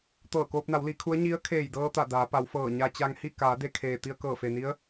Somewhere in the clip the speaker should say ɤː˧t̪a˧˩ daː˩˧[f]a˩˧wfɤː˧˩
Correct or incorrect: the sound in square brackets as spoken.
incorrect: p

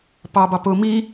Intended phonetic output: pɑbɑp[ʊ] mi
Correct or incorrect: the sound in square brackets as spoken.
correct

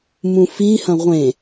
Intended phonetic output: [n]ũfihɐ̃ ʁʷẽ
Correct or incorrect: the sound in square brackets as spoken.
incorrect: m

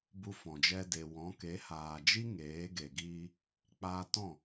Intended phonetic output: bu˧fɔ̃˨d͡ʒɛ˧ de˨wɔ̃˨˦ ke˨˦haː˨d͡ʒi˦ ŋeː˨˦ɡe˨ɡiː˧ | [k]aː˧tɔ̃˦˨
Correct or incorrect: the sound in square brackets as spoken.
incorrect: k͡p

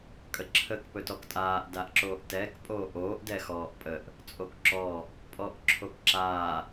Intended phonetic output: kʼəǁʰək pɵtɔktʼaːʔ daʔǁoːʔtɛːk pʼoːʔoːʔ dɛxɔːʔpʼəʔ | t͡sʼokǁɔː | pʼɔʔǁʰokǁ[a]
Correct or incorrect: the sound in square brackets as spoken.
incorrect: aː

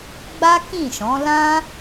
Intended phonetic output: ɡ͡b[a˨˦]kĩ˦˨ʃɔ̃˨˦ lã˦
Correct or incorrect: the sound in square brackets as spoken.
incorrect: a˦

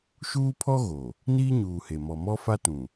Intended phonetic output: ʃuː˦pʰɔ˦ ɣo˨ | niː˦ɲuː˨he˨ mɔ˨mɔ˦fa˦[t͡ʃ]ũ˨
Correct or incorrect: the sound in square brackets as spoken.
incorrect: t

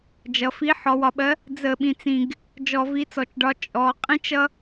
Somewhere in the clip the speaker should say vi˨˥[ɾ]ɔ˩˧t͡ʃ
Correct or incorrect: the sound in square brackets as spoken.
incorrect: t͡s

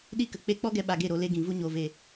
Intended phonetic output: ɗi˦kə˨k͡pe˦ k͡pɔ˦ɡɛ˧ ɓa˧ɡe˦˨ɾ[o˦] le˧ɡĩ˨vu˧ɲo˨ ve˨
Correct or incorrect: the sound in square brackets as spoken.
incorrect: o˧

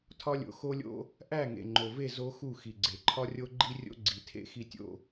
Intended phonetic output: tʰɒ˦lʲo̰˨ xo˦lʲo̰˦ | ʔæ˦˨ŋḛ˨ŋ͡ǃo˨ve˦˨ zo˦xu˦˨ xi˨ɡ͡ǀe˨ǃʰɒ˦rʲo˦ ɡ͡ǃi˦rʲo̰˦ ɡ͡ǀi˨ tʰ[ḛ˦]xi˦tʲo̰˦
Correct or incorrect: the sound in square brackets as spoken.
correct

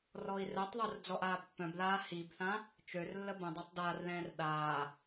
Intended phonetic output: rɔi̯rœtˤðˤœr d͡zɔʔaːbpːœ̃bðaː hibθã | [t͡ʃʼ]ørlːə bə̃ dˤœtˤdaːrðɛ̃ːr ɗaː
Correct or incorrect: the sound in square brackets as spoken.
incorrect: t͡ʃ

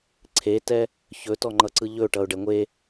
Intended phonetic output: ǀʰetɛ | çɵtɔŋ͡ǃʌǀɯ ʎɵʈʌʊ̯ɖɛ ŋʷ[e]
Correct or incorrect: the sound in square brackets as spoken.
correct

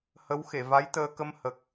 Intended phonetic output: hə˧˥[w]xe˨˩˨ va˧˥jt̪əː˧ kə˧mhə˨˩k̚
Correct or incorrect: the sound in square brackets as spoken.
correct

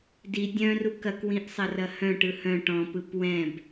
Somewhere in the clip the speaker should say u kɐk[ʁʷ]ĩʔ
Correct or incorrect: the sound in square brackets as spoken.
incorrect: w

